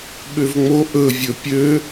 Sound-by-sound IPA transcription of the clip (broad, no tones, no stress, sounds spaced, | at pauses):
ɓ ø v ŋ͡m o ʔ ɵ vʲ ɵ pʲ ø